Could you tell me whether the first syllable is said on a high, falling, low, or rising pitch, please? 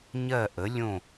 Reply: falling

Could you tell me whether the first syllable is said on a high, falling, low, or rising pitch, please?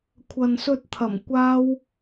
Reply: low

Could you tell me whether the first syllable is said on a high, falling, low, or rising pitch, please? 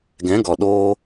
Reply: rising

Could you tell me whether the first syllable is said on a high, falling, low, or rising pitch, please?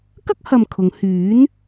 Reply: high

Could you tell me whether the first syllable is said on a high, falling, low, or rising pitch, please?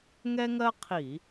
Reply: high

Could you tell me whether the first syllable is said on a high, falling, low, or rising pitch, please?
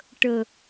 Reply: low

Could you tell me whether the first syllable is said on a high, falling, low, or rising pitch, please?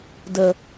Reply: low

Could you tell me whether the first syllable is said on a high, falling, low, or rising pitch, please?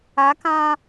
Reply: rising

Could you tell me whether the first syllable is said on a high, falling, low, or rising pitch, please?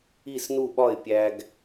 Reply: falling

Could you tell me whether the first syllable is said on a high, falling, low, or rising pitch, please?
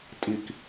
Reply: falling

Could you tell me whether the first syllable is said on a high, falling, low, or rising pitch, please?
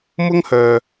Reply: high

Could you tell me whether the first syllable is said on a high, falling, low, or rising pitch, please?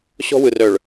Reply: high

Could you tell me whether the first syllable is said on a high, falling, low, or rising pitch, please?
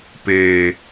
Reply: low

